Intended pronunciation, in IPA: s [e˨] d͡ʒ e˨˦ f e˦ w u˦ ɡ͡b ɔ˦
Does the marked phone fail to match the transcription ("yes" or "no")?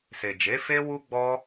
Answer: no